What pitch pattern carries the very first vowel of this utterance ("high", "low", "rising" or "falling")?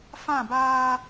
falling